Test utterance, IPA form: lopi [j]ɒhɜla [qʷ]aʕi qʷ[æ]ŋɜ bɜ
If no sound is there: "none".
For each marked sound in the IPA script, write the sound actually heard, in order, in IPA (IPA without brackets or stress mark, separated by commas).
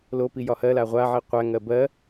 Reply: j, ʁʷ, æ